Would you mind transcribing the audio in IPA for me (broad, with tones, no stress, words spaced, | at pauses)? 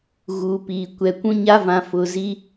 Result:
ɣuː˨piː˨ kʷɛ˨kʷũ˦ ɲa˦vã˨ fʊ˨zi˦